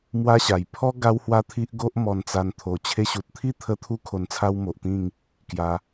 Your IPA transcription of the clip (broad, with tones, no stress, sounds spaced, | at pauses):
m w a˦ ɕ a˨˩ j pʰ ɔ˦ ɡ a˦ w h w a˦ t̪ʰ i˦ ʔ ɡ o˦ ʔ m ɔ˧ n t͡s a˧ n t̪ʰ o˨˩ t͡ɕʰ e˧ ɕ u˨ t̚ t̪ʰ i˥˧ t̪ʰ ə˧ t̪ʰ u˧ kʰ o˧ n t͡sʰ a˦ w m o˨ ʔ t̪ ĩ˥˧ ŋ | k j a˧